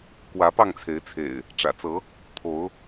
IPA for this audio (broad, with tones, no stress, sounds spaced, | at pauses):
k w ä˨˦ p ɑ˥˨ ŋ t͡sʰ e˨˦ ɪ̯ t͡sʰ ḛ˨˩ ɪ̯ | ʈ͡ʂ ä̰˨˩ t͡s ɤ˨˦ | t̪ʰ o˨˦ ʊ̯